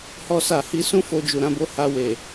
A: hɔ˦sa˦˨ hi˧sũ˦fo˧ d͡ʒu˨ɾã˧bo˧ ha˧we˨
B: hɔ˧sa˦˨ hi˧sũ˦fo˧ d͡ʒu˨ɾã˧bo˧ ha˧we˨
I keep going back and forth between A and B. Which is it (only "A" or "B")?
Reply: A